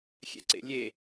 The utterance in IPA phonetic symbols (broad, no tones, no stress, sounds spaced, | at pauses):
xʲ ɛ̰ ǀ ḛ lʲ e